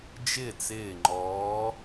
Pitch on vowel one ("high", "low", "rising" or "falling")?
falling